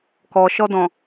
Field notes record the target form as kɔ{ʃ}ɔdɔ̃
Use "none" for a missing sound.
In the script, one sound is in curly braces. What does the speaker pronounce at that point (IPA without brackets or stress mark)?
ʃ